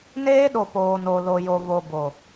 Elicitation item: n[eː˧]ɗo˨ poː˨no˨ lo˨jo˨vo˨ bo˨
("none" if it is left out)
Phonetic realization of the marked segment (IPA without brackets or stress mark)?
eː˦